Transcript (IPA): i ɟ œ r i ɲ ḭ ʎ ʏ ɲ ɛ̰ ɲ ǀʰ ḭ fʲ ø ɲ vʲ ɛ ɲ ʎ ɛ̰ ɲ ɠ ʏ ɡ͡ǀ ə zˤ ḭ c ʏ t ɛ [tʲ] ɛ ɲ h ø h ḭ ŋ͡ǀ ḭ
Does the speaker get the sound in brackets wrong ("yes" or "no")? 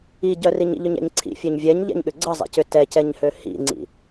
yes